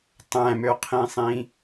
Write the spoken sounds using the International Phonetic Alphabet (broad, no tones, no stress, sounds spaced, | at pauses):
tˤ æ̃ m ø qʰ ĩ sˤ ĩ